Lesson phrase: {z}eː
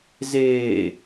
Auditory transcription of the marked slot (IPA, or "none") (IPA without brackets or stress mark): z